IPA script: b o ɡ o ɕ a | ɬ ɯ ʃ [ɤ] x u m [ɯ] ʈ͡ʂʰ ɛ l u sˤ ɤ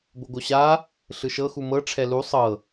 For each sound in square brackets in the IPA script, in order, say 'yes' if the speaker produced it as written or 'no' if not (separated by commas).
yes, no